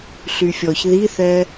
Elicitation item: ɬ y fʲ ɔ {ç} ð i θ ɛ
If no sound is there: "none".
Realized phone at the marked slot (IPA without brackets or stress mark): ç